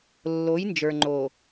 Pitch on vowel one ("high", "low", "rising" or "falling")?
rising